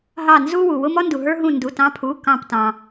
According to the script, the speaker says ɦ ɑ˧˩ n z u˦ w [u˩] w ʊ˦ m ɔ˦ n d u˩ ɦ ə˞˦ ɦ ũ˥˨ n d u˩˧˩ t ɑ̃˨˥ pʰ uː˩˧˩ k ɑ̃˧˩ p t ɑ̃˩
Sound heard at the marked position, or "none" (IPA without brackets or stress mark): u˩